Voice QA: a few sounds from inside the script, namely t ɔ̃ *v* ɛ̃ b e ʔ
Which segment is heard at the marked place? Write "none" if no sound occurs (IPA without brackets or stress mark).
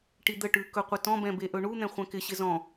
b